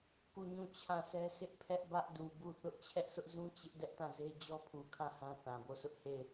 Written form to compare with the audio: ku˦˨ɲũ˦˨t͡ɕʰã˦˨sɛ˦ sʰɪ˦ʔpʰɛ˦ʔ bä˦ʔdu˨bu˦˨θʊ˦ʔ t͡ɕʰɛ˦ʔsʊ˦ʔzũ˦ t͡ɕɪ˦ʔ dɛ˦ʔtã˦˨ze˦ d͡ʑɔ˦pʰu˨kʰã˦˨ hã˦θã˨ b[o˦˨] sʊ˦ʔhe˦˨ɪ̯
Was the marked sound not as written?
no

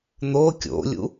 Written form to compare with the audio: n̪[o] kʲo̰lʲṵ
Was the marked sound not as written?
no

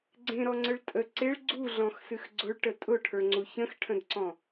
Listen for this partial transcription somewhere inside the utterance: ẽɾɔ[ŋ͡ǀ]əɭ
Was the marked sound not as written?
no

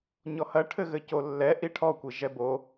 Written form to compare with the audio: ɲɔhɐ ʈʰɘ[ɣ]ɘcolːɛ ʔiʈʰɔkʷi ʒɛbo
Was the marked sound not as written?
no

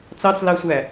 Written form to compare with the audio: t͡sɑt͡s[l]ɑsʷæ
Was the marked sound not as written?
no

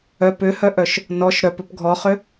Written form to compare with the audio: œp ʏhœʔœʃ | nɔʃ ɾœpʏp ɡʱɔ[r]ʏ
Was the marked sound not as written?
yes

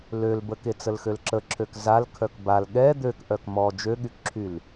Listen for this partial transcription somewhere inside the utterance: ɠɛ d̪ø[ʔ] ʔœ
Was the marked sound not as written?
yes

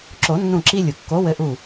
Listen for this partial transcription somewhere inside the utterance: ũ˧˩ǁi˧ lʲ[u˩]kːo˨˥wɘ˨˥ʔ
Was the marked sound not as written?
no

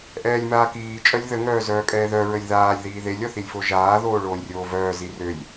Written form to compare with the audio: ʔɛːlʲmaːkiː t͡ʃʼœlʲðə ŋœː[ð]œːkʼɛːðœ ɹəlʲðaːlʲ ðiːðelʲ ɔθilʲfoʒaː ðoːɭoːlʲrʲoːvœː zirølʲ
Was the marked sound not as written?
yes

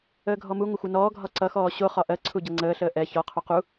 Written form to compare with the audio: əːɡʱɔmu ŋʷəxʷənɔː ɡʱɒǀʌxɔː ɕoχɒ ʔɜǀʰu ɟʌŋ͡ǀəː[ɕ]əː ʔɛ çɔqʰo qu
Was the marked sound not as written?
yes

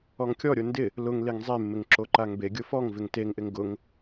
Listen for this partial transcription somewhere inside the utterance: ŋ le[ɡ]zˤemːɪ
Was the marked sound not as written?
yes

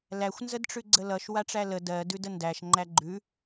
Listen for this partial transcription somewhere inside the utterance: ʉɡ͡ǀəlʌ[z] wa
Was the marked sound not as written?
yes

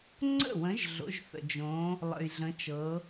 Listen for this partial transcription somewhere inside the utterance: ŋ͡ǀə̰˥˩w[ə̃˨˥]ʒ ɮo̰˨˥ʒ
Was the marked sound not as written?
no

